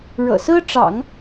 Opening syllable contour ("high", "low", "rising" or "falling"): low